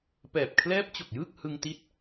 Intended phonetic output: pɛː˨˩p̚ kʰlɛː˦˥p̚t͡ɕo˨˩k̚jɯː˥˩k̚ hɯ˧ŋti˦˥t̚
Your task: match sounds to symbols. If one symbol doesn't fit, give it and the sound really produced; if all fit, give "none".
none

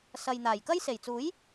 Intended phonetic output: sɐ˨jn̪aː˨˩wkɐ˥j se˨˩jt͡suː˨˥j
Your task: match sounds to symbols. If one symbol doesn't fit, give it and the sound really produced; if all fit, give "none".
w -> j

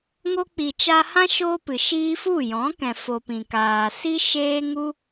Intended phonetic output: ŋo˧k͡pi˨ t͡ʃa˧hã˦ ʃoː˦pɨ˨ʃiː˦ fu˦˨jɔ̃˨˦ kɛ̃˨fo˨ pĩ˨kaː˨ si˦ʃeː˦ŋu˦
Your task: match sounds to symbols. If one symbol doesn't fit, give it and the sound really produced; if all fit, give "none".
none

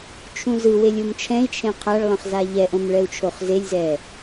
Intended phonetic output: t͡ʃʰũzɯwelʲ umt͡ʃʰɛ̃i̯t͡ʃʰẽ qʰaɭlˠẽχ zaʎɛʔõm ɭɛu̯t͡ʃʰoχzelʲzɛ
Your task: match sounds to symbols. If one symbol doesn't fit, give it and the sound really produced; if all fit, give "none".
none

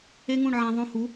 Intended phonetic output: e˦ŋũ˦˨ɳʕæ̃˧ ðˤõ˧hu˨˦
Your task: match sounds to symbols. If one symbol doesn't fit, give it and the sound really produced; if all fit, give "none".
none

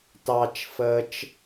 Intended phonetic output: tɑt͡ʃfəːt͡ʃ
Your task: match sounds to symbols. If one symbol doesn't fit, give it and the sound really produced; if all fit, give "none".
none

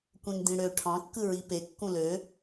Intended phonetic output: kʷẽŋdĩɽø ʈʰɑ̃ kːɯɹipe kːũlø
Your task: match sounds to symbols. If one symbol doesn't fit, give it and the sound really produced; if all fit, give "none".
none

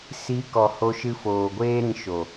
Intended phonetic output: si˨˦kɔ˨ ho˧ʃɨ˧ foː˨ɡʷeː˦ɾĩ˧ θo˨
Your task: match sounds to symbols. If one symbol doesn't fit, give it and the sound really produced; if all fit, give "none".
θ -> ʃ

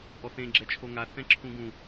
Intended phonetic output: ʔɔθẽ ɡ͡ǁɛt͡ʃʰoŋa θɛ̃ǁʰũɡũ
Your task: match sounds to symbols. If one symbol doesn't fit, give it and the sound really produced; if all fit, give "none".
none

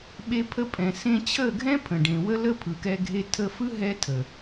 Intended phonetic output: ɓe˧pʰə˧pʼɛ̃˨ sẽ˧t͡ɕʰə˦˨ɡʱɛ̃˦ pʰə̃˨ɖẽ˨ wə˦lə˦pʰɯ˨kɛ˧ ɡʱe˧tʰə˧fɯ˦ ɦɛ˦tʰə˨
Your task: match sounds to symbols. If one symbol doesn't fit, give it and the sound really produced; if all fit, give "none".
none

